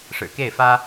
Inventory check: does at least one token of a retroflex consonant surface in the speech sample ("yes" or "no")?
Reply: yes